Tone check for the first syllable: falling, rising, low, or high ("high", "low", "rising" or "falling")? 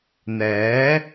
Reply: rising